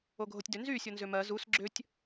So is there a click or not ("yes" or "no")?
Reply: yes